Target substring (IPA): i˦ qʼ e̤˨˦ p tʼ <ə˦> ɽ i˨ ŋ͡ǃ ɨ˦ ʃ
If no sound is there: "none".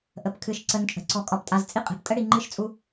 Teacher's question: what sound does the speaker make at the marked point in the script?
ə˦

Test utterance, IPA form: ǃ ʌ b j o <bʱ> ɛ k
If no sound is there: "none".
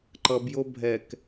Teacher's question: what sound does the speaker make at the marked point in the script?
bʱ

